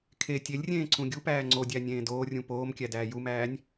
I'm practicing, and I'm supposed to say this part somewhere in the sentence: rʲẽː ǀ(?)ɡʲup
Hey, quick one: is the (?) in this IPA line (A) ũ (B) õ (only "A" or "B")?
A